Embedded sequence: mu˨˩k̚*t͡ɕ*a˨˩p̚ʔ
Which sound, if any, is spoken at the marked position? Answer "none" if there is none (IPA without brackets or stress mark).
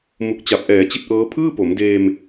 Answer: t͡ɕ